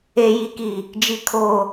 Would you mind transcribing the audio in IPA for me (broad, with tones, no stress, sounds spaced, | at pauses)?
e˦ j i˦ k i˦˨ | d͡ʒ i˦ kʰ oː˦